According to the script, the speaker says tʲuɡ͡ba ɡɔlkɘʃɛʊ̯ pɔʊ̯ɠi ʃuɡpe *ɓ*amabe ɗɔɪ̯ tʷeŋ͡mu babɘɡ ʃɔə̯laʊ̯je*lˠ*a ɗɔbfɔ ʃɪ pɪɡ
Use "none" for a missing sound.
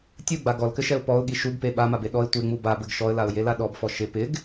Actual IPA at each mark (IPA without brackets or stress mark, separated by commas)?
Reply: ɓ, l